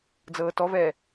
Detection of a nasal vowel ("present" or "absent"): absent